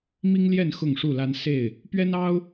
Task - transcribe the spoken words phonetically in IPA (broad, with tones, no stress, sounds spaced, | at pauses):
m i˦ ŋ l j ɛ˥˨ n x ʊ˥˨ ŋ ʂ u˥˨ l a˦ n s e˥˨ ɪ̯ | p ɥ ɛ˦ n ɑ˦ ʊ̯